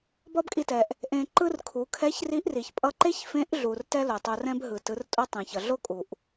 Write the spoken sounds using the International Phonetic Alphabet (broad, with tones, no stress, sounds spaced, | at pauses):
b ʌ˥ b kʼ i˧ t ɛ˩ ʔ | ʔ ẽ˧ ǃ ɯ˥ r kʰ u˩˧ kʰ ɛ˧˥ ç r i˧˥ ʔ r i˩ ç pʼ ʌ˧ ǃ e˥ ç f ẽ˧˥ ʔ ɮ u˩ r t ɛ˥ l o˩ tˤ o˧ r ɛ̃˥ b ɦ ɯ˩ t ɯ˩˧ r tʼ o˥ tˤ ẽ˩ ç ʌ˩ ɮ o˥ kʼ u˩ ʔ